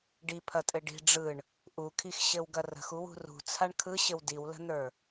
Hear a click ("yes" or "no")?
no